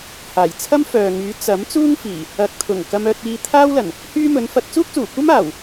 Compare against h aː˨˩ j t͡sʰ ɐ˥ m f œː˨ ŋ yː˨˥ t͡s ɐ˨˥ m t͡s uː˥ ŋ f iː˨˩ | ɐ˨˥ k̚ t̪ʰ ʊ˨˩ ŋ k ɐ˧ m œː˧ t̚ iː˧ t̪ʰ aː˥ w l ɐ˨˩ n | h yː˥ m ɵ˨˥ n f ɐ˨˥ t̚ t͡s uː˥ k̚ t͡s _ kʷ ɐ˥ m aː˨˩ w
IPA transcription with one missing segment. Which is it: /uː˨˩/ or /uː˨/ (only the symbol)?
uː˨˩